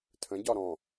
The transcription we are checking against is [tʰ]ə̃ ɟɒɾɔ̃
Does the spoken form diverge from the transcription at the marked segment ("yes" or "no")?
no